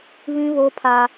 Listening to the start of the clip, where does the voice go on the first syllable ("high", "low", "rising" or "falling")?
high